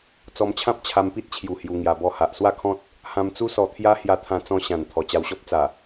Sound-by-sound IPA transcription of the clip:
t͡s ɔ˧ m t͡ɕʰ ã˦ p̚ t͡ɕʰ a˧ m p i˦ t̚ t͡ɕʰ j u˨˩ h j u˧ ŋ j a˧ b ɔ˥˧ h a˨ ʔ s w a˥˧ kʰ ɔ̃˦ t̚ | h ã˧ m t͡s u˦ s ɔ˧ t̪ʰ j a˦ h j a˧ t̪ʰ ã˧ t͡s ɔ̃˧ ɕ ã˨˩ n t̪ʰ ɔ˨˩ t͡ɕ a˧ w ɕ ɔ˦ p̚ t͡s a˨˩

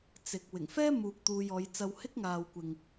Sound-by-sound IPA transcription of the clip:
t͡s ɪ˨ k̚ w ɪ˨˩ ŋ f ɛː˥ m uː˧ k̚ t̪ uː˧ j ɔː˨˧ j t͡s ɐ˧ w h ɪ˥ k̚ ŋ aː˨ w kʷ ɪ˨ ŋ

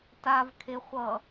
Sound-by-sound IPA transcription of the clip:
t a v kʰ e χʷ ʌ

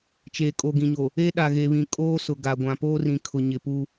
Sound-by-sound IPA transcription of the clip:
t͡ʃ eː˨ kʼ o˨ ɡ ĩ˨ ɲ o˨ | e˦ ɗ a˨ ɣ e˨ β ĩ˨ kʼ oː˦ s ʊ˨ ɡ a˨ ɡʷ ã˨ p oː˦ r ĩ˨ kʰ ʊ˨ ɲ ɪ˨ p uː˦

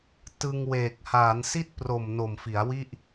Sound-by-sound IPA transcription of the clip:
t ɯ˧ ŋ w eː˨˩ k̚ h aː˩˦ n s i˥˩ t̚ p r o˨˩ m n o˨˩ m f i˩˦ a̯ w i˥˩ ʔ

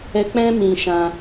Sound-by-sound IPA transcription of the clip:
ɛ˧ k͡p ɛ̃˦ m ĩ˧ ʃ ã˧

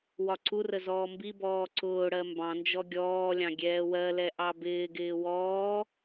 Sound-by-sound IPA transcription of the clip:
w ɒ ǀ u r ə z ɔː m b i b ɔː ǀ ʊː ɽ ɜ m b ɑ̃ n d͡ʒ ɔ ɡʲ ɔː lʲ ɑ̃ ɡʲ ɛː w ɜ l ɛ ʔ ɑ b ɪː ɡ ɪː w ɔː

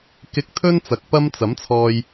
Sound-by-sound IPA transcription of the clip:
k ɪ˧ k̚ t̪ʰ ɵ˥ n t͡s ɐ˨ k̚ p ɐ˥ m t͡s ɐ˨˥ m t͡sʰ ɔː˧ j

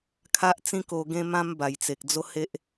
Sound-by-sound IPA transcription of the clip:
kʰ a˦ ʔ t͡s ĩ˦ k o˧ ɡ ẽ˦ m ã˦ m b a˨˩ j t͡s e˨ k̚ d͡z o˦ h e˦ ʔ

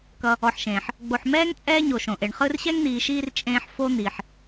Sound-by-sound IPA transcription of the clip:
k ʌ˨ | ɔ˨ ħ ʃ ẽː˩ ħ | ɡ͡b o˨ ħ m ɛː˥ ŋ t͡sʼ ɛː˥ ɲ o˨ ʃ õ˩ ʔ e˩ ɳ χ ɯ˦ r ɕ ɛ˥ ŋ n̪ iː˨ ʃ iː˦ r t͡ʃʼ ẽː˦ ħ f o˥ n̪ i˩ ħ

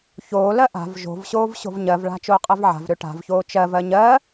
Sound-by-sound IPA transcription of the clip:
ç oː l ɜ ʔ a̤ v ʒ o̤ v ɕ oː v ɕ o̤ v ɲ ɜ v ɭ a̤ t͡ʃ oː qʼ ɜ v ʕ a̤ v ɾ ø ʈ a̤ v ç oː t͡ʃ ɜ v ɜ ɲ ɜ

